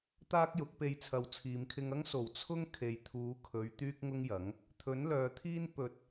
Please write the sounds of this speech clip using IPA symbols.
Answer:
t̪ aː˥ k̚ j ʊ˨˥ k̚ p e˧ j t͡sʰ ɐ˨ w t͡sʰ iː˨ m kʰ ɪ˧ ŋ ɐ˥ ŋ s o˨˩ w t͡sʰ ʊ˥ ŋ kʰ e˨ j t̪ʰ uː˨˧ kʰ ɵ˨˧ ɥ t̪ yː˥ k̚ ŋ ʊ˥ ŋ j ɐ˨˥ ŋ | t̪ʰ ɵ˨˥ n l œː˨ t̪ʰ iː˥ n p ɵ˨ t̚

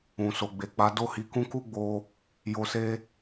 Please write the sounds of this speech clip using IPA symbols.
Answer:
ũ˨ s o˨ ɡ͡b e˨ k͡p a˨˦ d o˦˨ h i˨˦ k ũ˦ k u˦ ɡ͡b o˧ | j o˧ s e˦

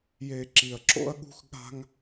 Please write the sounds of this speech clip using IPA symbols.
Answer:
j e˨ ǁ i˨ ɐ̯ ǁ o̰˦ ɐ̯ ɠ ṳ˦ x ɠ a̤˦ ŋ

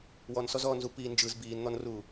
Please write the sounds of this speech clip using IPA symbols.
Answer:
w ɔ n s ɔ z ɔː n z u p i n d͡ʒ ɯ z b iː n n̪ ɔ n r uː

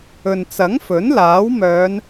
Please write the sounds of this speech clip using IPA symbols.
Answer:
ɵ˨ n t͡s ɐ˨˥ ŋ f ɵ˨˥ n l aː˨˥ w m œː˨˧ n

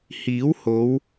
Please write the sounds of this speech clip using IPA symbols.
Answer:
h iː˨˥ w h o˨˧ w

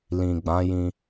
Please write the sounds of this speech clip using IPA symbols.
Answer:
l ĩ˨ ɡ͡b ã˨˦ j ĩ˧

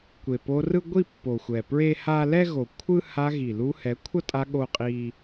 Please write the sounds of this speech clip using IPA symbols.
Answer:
kʷ e˨ p o˧ r ɯ˦ ɡʷ i˦˨ pː o˨ xʷ ɛ˨ p ɹ e˦ h a˦ l ɛ˦ ɣ o˨ kʷʰ ɯ˦ h a˧ ɣ i˨ l u˧ h ɛ˨˦ kʷʰ ʌ˦ tʼ a˧ ɠ o˦ qʼ i˦

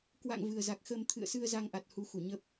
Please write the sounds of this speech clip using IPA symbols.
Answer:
k w a̰˧˨ ŋ v ɨ˨˩ ə̯ z a˨˩ k̚ x əː˧ m t̪ʰ ɨ̰˧˨ ə̯ s ɨ˧ ə̯ z a˧ ŋ ʔ a˨˩ t̚ h u˨˦ x u˧˩ ɲ ə˦˥ p̚

